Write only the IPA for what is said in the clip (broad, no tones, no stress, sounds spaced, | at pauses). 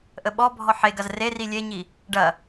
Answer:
ʔ ə ɓ ɔ bʱ ɔ ħ e ɡ ɐ z r e r i lʲ e ɲ i | ɖ ɐ